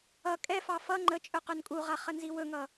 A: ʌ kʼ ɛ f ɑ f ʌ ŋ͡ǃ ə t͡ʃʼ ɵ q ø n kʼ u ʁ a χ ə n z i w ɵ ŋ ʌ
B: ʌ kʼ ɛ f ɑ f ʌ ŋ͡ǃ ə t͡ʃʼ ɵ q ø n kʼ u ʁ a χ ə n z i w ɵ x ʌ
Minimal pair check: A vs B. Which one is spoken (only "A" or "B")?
A